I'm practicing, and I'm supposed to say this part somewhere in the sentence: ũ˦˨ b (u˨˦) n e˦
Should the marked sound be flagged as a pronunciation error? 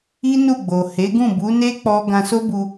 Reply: no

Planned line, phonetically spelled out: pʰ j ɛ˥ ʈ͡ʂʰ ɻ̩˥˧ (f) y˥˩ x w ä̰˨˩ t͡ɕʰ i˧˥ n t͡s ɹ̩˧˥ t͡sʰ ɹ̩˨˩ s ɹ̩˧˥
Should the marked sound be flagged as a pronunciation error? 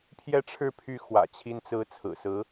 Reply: yes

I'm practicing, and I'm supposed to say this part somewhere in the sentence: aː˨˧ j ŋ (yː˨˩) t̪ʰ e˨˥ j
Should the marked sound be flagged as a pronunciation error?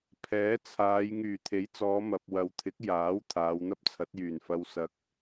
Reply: no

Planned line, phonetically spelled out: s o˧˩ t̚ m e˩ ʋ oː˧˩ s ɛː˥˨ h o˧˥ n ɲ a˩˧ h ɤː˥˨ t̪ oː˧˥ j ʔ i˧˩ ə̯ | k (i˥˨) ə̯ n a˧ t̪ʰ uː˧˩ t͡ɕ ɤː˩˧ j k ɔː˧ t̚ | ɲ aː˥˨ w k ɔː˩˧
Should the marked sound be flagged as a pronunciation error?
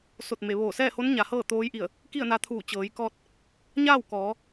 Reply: no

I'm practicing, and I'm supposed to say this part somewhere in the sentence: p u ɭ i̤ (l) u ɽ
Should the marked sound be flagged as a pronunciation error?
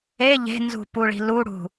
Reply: no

